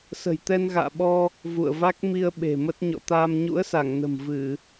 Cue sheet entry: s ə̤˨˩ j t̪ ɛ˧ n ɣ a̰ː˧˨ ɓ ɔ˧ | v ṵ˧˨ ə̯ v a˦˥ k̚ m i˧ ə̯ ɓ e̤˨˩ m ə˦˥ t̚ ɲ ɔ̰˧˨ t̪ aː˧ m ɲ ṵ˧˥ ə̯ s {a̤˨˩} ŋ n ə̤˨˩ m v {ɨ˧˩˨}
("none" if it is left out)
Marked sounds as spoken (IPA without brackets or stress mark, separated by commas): a˧˩, ɨ˧˩˨